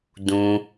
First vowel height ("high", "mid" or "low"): high